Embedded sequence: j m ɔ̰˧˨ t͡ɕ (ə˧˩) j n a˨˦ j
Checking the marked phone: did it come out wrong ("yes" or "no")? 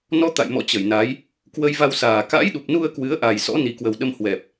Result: no